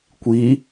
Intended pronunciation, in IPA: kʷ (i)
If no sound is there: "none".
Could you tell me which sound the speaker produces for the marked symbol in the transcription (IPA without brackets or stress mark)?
i